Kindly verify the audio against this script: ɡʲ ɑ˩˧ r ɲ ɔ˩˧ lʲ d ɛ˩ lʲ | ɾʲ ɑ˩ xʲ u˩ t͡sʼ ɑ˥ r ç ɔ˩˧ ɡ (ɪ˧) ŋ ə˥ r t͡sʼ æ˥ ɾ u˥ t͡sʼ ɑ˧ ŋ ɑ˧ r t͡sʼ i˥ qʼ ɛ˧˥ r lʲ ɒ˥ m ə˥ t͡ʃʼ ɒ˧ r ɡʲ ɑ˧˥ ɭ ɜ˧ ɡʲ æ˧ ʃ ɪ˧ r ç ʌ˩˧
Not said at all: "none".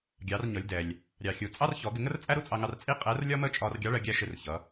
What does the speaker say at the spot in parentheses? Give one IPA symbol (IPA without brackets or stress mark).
ɪ˧